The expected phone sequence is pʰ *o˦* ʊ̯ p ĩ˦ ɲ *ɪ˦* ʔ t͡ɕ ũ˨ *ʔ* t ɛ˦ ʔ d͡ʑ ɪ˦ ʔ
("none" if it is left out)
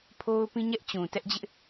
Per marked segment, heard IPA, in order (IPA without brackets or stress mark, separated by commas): o˦, ɛ˦, none